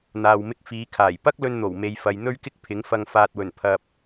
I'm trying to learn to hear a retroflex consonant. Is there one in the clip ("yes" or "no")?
no